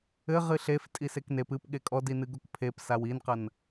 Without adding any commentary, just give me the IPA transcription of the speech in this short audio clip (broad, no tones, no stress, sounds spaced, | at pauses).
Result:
ɘ ʁ ɨ ɬ e f tʼ i s e k n e p ɨ p ɠ e kʼ ɔ d i n ɨ ɡ o k pʰ e p s a w i n q ɐ n